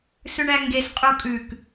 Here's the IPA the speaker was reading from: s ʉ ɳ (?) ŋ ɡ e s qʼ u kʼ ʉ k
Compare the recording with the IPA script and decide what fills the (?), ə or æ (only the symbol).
æ